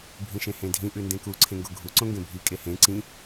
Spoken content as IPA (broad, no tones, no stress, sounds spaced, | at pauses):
bʱ ĩ ʃ ẽ h ẽ dʱ ĩ ʔ ʉ n d ẽ k u ǀʰ ẽ ŋ ɡ o ɡʱ u ǀ õ ŋ ɡ ẽ bʱ i kʼ e h ẽ ǀ ĩ